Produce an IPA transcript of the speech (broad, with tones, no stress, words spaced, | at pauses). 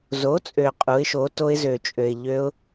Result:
zo˨˥t͡sʼø˨ qʼu˨˥ɪ̯ʃo˨˥ to˦˥ɪ̯zø˨t͡ʃʼø˨ɪ̯ ʎø˦˥ʊ̯